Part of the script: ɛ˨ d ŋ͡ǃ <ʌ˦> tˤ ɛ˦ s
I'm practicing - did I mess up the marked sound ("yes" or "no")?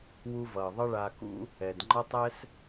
no